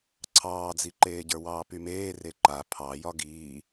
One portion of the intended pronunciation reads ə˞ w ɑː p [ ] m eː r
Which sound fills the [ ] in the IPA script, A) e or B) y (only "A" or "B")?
B